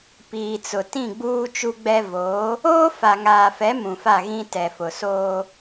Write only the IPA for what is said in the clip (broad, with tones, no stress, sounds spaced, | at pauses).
p iː˨ t͡s ʊ˨ t ĩ˦˨ ɡ͡b uː˦ t͡ʃ u˦ ɡ͡b ɛ˦ v oː˨˦ | oː˦ f a˨ ŋ aː˨ f ɛ˨˦ m ũ˨ f a˦˨ ɣ ĩ˦ t ɛ˨ f ʊ˨ s oː˦